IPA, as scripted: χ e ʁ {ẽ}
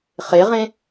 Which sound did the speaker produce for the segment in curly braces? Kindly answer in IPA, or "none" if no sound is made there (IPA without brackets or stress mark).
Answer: ẽ